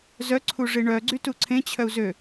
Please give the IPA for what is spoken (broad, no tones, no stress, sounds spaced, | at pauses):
z œ ǀʰ u ʐ i ɳ œ ɡ͡ǀ y t u ǀʰ ẽ t͡ɕʰ œ u̯ z ø